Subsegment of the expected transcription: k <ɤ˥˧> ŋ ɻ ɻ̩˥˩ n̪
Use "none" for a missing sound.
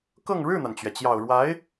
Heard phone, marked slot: ɤ˥˧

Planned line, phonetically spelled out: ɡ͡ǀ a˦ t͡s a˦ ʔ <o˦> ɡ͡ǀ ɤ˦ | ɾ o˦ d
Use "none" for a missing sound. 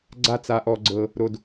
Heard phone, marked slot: ɔ˦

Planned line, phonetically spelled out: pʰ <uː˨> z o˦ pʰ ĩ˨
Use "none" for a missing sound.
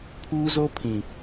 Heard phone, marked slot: uː˦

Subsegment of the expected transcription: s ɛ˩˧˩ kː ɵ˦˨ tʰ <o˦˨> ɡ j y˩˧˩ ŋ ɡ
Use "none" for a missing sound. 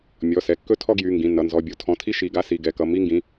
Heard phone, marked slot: ɔ˦˨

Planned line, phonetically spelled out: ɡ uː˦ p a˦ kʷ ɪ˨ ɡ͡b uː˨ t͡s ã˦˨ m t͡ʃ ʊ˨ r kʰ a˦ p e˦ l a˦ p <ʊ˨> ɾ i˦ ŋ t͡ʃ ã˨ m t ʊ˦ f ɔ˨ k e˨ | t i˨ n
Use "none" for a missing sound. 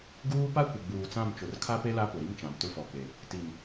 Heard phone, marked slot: ʊ˨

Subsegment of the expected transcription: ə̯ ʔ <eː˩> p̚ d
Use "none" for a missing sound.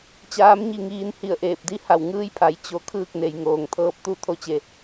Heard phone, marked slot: eː˧˩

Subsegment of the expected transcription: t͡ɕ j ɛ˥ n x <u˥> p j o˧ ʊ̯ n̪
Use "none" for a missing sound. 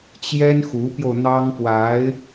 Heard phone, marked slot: u˧˥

